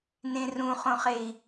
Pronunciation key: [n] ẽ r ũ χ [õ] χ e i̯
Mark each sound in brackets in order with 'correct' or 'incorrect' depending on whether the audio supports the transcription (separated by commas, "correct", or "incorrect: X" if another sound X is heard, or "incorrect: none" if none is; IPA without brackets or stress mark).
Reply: correct, correct